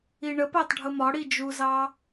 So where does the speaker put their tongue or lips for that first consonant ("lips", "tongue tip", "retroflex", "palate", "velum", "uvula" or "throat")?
retroflex